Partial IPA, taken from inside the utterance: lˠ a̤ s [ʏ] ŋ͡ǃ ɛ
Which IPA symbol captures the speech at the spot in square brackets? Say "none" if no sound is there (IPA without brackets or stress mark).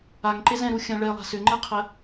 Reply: ʏ